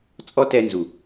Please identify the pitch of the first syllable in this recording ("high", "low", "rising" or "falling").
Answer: high